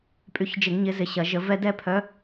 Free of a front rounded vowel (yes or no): no